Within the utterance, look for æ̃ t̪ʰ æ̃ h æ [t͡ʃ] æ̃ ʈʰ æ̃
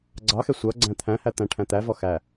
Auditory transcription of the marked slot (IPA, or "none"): t̪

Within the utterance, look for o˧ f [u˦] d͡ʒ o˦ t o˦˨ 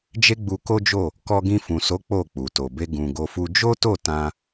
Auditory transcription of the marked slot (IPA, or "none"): u˦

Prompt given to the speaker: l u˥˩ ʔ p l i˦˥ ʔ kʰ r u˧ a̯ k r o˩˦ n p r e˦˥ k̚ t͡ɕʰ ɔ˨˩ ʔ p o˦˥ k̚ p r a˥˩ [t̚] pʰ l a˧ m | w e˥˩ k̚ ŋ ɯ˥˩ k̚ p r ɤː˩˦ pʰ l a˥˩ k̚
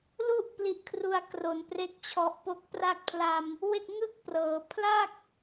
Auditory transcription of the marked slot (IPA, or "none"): k̚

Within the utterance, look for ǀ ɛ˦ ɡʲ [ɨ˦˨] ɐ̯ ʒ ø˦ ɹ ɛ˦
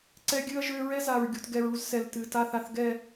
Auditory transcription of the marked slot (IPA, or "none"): ɨ˦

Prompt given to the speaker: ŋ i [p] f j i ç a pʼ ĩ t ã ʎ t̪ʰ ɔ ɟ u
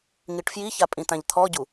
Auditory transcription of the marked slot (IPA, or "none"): ʈ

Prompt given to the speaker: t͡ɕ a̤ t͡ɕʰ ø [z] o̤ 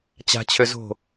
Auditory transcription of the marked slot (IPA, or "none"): z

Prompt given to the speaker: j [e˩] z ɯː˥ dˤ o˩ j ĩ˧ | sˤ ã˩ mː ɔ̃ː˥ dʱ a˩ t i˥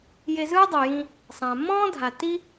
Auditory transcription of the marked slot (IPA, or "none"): e˧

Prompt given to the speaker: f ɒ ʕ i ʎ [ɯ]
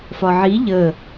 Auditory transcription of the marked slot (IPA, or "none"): ə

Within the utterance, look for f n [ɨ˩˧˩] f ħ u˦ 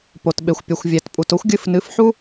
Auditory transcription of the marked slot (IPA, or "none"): ɨ˩˧˩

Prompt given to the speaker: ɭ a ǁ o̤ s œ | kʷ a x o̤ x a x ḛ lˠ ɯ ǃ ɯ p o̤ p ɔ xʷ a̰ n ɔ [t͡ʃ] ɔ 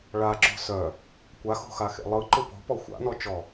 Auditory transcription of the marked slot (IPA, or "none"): t͡ʃ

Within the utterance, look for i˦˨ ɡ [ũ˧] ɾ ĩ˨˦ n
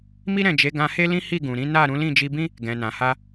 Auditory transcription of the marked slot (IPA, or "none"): ũ˨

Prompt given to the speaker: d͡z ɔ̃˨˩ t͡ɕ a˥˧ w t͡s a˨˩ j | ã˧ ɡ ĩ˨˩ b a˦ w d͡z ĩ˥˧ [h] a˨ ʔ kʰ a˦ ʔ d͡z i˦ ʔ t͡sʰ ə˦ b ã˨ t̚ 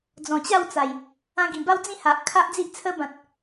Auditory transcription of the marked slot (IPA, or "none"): h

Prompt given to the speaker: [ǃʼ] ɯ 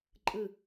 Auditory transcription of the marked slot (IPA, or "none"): ǃʼ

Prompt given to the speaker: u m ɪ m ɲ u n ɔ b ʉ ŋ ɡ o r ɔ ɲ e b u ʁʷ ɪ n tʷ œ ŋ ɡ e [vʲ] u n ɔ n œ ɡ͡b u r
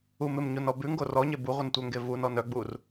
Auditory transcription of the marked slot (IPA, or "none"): v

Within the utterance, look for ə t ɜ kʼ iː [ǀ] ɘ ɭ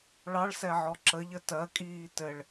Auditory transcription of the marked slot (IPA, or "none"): t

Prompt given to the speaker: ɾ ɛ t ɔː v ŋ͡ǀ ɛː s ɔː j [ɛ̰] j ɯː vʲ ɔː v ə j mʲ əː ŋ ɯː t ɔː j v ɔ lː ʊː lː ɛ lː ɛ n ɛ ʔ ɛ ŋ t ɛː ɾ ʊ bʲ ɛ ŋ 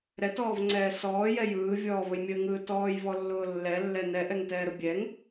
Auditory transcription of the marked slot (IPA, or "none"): ɛ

